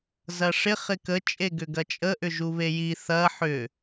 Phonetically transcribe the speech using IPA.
zɐʂɪ χɪkə t͡ʃʼeɡʏɡɐt͡ʃʼə ʔʏʒuβeji θɐ ħʏ

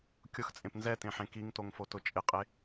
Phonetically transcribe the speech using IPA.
kʲʊxt͡sʼẽp nzɛtẽħẽ kiŋtoŋfotʊ t͡ʃʼɪqʼe

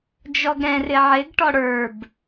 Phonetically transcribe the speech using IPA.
d͡ʒɔɡɾɛ̃rɪ ʕɪɡ ʈɔɽə˞b

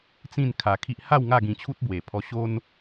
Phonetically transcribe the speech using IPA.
t͡sĩ˥˧n kʰa˧kʰi˦ʔ ha˥˧w ŋa˥˧ɡĩ˧t͡ɕʰu˦t̚ bwe˨˩pʰɔ˧ ɕo˦n

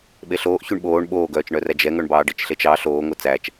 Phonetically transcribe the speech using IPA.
ɓeɬoːʔ çyɳɓoːɳ ɓoːɡœːt͡ʃɳœræ d͡ʒɛŋœɳbɑː ɖit͡ʃɬet͡ʃɑ ɬoːŋo t͡sæt͡ʃ

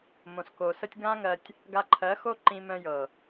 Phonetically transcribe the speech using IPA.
mõ˨sko˨sə˦tʲ ɡã˦ŋɜ˧tʲ | ɡa˧ǃʰɜ˨˦xo˦ ǃĩ˧mœ̃˧ jɤ˨

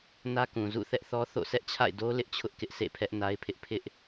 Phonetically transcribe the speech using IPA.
nä˦kũ˨ zṵ˦˨ θɛ˦ʔθɔ˦θo̰˦˨ sɛ˦ʔt͡ɕʰa̰˦˨ɪ̯do˦ lɪ˦ʔt͡ɕʰʊ˦ʔkɪ˦ʔ sḛ˦˨pʰɛ˦ʔ na˦ɪ̯pʰɪ˦ʔ pʰɪ˦ʔ

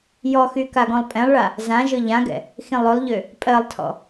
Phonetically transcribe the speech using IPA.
jɔxy kaɡɔ̃lˠpʼɛ̃lˠɭa | zãʒɵ ʎãɡɛ̰ | xĩlˠɵlˠʎø | pʼɜlˠtʰɔ̰

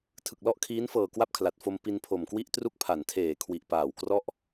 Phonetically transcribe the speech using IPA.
tʰɯ˨˩k̚lɔ˥˩ʔkʰiː˦˥nfɤː˨˩ kwa˥˩p̚kʰla˨˩t̚ fo˧m pi˧npʰo˨˩mkwi˥˩ʔtru˥˩k̚ pʰa˩˦ntʰeː˨˩kʰwi˨˩ʔpaː˨˩w krɔ˥˩ʔ

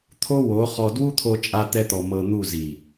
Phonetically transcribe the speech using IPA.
t̪ʰo˦wo˨˦χɔ˧ dwu˦t̪ʰo˧t͡ʃʼa˧ t̪ɛ˦t̪ɔ˧ mɤ˧n̪u˦˨zi˨

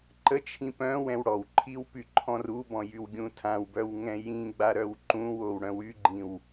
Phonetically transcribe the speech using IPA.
ǃət͡ʃʰĩ pœ̃ wɛ̃wɽɔwǃʰiw pyǃʰɔ̃rubɔ̃ jywɡʲũtʰãwbœw ŋɛ̃jĩɡ͡ba ɾœwǃũwow ɽœ̃wyɡ͡ǃĩw

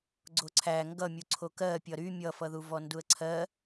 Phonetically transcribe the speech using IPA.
ɡ͡ǀoǀʰæ ŋɡʌmʲuǀʰo kɜ pʲʌɾy mʲʌfʌðuvɔ nduə̯ǀʰɜ

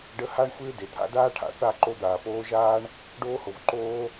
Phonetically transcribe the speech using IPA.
ɖə˧ha˦ɳxʷɪː˦ de˨t̪ʰa̰˧daː˦ ʈʰa̰˨θa˦˨ ǃo˧d̪aː˨poː˧ʒaː˦ɳ | ɖoː˧ho˨vǃoː˧

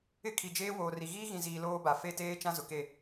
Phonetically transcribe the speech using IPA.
ɪ˦kʰi˨d͡ʒeː˦ woː˨ri˨ ɣiː˦ɣĩ˨ziː˨ loː˦ba˨ fe˦˨teː˦ t͡ʃã˦zʊ˨ke˦˨

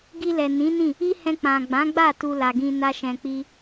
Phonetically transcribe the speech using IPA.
ɡi˧lɛ˨nĩ˨˦nĩ˦˨ | i˦hɛ̃˧ k͡pã˨ɡ͡bã˨˦ɡ͡ba˦˨ tu˧la˨ɡĩ˧ na˦ʃɛ̃˧k͡pi˦

